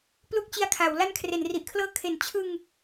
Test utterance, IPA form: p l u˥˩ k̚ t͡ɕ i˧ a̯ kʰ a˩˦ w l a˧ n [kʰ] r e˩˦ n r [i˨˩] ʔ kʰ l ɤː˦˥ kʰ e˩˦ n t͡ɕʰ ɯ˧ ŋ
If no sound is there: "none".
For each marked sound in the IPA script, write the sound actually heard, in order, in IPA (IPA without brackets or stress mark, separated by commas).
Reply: kʰ, i˨˩